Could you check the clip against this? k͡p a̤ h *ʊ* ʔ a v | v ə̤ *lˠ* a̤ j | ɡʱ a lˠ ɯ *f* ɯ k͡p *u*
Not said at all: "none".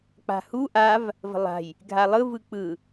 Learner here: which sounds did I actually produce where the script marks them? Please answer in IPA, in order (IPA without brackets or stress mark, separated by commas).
u, lˠ, v, ɯ